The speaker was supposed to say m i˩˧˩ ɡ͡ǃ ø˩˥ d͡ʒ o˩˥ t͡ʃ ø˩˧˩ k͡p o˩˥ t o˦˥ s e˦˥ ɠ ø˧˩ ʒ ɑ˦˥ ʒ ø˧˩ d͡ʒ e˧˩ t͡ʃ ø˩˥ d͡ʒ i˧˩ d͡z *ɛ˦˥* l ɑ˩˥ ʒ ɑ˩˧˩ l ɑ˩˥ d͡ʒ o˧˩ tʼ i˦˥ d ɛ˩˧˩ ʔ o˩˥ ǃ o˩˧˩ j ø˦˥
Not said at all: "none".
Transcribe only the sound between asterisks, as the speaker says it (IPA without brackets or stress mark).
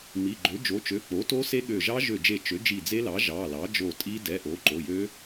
e˦˥